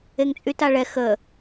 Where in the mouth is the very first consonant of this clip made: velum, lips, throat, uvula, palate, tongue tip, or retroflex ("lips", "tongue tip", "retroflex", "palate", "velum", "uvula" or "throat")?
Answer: velum